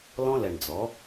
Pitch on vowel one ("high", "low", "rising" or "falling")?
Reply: high